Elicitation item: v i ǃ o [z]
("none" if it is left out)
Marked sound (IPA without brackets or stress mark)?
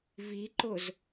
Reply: z